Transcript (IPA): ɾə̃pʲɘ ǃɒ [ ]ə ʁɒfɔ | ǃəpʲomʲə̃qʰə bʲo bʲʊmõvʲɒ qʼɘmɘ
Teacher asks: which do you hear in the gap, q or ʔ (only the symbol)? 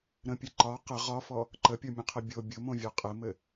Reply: q